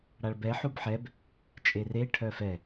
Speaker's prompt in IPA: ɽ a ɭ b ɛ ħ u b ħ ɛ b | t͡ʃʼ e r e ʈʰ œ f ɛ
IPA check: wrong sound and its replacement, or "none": none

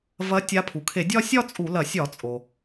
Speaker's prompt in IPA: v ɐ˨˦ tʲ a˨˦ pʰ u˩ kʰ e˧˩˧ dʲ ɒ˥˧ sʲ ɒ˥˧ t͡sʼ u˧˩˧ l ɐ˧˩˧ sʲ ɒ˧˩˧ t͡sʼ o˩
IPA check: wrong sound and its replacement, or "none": none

